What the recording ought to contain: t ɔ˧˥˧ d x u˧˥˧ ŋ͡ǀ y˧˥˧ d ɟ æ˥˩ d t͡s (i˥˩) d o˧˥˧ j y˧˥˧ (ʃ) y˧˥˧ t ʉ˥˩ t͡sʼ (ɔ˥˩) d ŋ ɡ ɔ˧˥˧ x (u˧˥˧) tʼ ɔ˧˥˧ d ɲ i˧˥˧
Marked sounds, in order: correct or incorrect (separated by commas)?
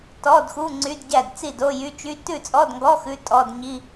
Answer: correct, incorrect, incorrect, incorrect